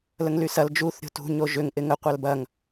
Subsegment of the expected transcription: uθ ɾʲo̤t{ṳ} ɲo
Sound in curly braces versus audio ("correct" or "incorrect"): correct